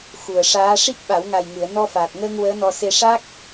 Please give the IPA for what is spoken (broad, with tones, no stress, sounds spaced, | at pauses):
x u˨˩ ə̯ ʂ aː˧˥ ʂ i˦˥ k̚ ɓ a˨˩˦ w ŋ a˨˩ j ŋ ɨ˨˩˨ ə̯ n ɔ˧ f aː˨˩ t̚ ŋ əː˧ ŋ w əː˧˥ n ɔ˧ s e˧ ʂ a˦˥ k̚